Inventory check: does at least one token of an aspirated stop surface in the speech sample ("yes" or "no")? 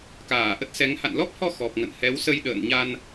no